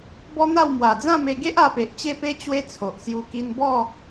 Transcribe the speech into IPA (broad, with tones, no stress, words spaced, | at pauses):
bɔ˦n̪a˥˧w mwa˨˩d͡zã˥˧me˧ɡe˦ʔ a˧pe˨ʔt͡ɕe˥˧pe˦ t͡ɕwe˦t͡sʰo˨ʔsju˧ ki˧nbɔ˥˧